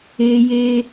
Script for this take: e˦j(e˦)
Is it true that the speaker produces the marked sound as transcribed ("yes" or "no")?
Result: yes